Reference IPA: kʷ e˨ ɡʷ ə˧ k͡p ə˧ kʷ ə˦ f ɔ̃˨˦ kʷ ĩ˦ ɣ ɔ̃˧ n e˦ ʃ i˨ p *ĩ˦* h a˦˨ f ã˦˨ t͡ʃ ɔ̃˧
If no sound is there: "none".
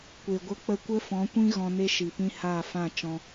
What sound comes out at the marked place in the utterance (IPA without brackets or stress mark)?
ĩ˦